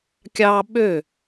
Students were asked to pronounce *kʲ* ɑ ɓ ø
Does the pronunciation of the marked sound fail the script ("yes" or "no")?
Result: no